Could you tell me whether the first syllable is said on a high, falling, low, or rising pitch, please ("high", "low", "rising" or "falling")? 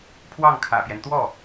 falling